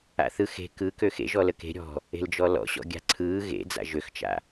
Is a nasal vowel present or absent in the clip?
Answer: absent